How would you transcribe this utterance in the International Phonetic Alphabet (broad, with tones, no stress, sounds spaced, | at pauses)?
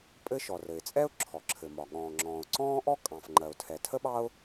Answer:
pʼ ɘ˥ ʃ ɔ˩ r ɘ˩ ɪ̯ t͡sʼ ɛ˥ ʊ̯ ǁʰ ɔ˩ ǁʰ ɘ˩ m ɒ˩ ɠ ɔ̃ː˩ ŋ͡ǁ ɔ̃ː˩ ʊ̯ ǀ ɔ̃ː˥ ʔ ɔ˥ kʼ ɑ̃˩ f ŋ͡ǃ ɜ˩ ʊ̯ tʰ ɛ˩ tʰ ə˥ ɓ ɑ˥ ʊ̯